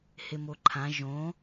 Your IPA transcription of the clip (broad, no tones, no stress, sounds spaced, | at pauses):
h e m o ǃʰ ã ʒ õ